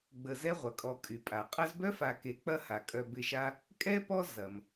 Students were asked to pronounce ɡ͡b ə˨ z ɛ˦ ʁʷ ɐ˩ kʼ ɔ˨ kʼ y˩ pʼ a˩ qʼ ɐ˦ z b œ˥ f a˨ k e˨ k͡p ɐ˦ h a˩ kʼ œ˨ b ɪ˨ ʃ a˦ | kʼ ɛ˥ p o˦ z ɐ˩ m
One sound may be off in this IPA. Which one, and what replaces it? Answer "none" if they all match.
o˦ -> ɔ˦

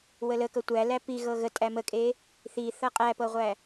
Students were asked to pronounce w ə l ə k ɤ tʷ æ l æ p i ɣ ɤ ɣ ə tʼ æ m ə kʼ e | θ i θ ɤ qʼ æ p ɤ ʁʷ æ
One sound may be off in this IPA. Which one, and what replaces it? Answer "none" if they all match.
none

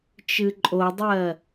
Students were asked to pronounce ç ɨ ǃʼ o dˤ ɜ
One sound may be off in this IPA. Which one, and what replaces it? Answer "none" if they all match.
ç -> t͡ʃ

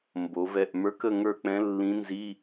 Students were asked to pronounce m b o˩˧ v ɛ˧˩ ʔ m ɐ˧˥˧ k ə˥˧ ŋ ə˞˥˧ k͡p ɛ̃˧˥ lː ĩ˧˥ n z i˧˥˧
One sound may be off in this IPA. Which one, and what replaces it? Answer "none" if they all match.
ɐ˧˥˧ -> ə˞˧˥˧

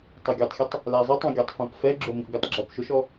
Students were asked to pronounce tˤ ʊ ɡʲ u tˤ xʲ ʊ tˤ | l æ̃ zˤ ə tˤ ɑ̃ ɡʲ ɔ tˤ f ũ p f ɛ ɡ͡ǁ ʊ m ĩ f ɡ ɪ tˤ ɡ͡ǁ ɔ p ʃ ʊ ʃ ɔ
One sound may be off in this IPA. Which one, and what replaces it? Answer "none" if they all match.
æ̃ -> æ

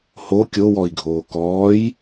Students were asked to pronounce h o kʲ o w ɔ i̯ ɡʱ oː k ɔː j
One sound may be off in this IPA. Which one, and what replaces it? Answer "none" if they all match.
none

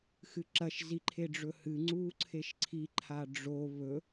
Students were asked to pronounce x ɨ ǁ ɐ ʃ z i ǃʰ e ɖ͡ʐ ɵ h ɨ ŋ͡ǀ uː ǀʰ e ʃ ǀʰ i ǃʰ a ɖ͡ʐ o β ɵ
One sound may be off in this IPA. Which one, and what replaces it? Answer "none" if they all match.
none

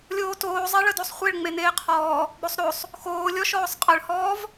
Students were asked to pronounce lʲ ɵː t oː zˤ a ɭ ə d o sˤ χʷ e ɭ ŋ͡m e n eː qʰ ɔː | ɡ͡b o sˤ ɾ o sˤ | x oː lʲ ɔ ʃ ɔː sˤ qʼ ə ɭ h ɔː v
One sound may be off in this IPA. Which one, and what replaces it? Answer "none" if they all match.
ɵː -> oː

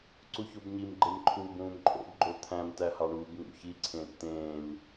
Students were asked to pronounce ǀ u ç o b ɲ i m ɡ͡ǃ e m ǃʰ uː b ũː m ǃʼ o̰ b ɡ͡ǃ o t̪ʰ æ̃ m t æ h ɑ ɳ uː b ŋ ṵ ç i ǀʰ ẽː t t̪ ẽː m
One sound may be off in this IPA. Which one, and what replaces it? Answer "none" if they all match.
none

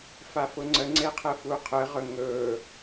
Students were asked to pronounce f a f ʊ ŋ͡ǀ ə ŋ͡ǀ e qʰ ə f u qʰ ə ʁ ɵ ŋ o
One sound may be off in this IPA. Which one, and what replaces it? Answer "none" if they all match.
o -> ɵ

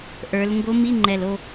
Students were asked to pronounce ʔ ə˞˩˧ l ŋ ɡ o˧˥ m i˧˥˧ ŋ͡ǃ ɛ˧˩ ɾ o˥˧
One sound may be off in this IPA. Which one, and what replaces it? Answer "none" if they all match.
ɾ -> l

